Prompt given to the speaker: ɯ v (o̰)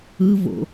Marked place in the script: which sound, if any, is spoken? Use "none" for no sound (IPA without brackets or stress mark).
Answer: o̰